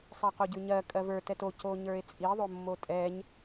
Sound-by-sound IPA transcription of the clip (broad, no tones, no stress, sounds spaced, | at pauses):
sˤ ɜ q o ɟ ʉ ɲ ɜ kʼ ɜ v ə˞ t ɛ t o c o ɲ ə˞ e̯ t͡sʼ i ðˤ o mː o tʼ ɛ ɲ